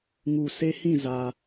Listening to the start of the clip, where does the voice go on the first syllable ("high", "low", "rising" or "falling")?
low